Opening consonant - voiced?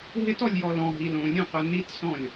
yes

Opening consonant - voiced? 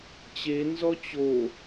no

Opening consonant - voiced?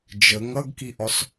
yes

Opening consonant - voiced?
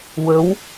yes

